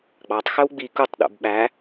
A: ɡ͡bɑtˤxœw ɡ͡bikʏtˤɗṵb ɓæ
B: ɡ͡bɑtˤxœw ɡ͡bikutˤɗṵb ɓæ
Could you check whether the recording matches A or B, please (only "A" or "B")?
B